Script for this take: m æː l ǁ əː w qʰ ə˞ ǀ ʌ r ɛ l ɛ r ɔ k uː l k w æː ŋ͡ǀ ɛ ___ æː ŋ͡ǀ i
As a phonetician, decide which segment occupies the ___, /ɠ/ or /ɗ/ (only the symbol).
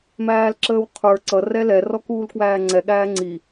ɠ